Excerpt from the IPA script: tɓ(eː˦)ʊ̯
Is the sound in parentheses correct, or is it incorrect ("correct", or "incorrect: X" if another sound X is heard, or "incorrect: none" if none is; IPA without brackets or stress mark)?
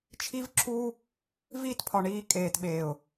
incorrect: eː˨